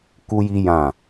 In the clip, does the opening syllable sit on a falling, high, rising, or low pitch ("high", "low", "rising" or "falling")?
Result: high